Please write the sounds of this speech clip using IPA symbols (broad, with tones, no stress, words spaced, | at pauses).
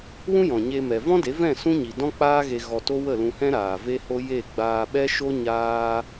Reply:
wũ˦jɔ̃˨ɲe˧mɛ˨ vɔ̃˦de˨˦vɛ̃˦˨ sũ˦ɲi˨ dɔ̃˦k͡paː˦ɣe˧ ɣɔ˧to˦ wə˦˨lũ˧hɛ̃˦ ɾaː˨ve˦ho˦ je˦˨ ɡ͡baː˧ɓɛ˦ʃo˦ ɲaː˦